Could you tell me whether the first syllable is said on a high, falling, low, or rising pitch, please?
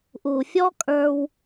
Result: low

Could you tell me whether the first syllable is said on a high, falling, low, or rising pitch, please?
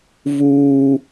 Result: high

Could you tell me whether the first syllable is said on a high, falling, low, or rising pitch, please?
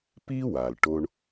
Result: high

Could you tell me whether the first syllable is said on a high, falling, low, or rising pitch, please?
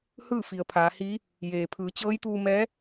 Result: falling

